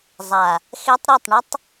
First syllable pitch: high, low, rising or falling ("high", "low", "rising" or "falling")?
low